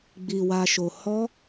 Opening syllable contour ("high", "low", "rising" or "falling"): low